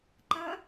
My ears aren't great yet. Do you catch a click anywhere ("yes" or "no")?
yes